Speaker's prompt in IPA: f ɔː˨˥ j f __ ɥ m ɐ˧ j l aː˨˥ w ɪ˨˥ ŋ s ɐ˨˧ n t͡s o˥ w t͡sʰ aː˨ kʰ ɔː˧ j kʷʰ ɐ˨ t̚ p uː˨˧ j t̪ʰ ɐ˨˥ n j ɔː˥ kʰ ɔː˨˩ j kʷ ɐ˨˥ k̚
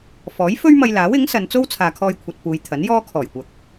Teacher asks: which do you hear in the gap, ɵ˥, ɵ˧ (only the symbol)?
ɵ˥